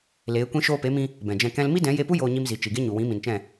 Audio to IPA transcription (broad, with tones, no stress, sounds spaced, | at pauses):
l eː˨˦ kʷ ĩ˧ ʃ oː˧ p e˨˦ m ĩ˧ | b ɛ̃˨ d͡ʒ ɛ̃˧ k ɛ̃˦ l m i˦ d ɛ̃˨˦ j e˧ p u˦ j oː˧ ɲ i˧ m z i˨ t͡ʃ i˨ ɡ e˦ ɲ u˨ w ĩ˨˦ m ĩ˨ n t͡ʃ ɛ̃˦˨